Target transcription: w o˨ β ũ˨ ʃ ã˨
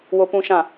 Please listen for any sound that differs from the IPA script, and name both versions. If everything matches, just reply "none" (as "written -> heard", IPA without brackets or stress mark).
β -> p